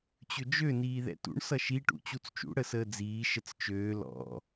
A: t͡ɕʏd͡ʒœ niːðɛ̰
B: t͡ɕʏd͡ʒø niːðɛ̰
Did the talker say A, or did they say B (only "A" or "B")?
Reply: B